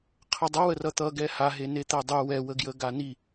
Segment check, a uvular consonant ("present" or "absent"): present